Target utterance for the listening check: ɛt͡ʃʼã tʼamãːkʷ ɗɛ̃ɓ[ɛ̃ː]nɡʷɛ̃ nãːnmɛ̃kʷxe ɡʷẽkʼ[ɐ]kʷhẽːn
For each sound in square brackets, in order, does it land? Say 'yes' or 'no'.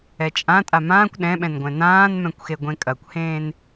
no, yes

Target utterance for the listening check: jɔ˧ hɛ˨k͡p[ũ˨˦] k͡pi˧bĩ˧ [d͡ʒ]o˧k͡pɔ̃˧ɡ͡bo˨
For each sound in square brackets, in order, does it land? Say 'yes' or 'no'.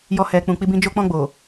no, yes

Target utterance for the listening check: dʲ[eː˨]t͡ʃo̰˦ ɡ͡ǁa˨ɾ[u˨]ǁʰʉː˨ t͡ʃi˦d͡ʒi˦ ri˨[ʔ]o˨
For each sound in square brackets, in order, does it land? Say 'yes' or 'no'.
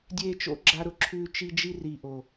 yes, no, yes

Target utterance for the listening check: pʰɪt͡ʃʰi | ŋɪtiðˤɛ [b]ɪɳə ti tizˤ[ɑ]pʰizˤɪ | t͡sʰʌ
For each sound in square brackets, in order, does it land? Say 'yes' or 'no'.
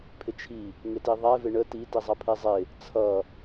no, no

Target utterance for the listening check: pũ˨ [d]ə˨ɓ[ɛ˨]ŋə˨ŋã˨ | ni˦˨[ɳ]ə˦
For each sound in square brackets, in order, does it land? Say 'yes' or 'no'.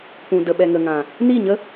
yes, yes, no

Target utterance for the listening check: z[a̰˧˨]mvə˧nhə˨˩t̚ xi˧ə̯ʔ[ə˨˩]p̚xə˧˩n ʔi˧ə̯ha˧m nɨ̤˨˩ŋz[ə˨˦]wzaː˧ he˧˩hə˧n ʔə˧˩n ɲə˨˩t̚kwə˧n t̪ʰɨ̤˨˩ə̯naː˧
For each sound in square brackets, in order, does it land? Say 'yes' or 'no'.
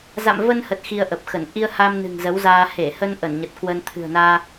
yes, yes, yes

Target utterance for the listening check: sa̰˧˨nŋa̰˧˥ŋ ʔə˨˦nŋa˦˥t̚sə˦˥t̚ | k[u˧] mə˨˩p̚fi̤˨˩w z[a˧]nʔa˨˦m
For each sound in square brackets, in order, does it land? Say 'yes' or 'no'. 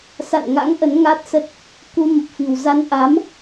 yes, yes

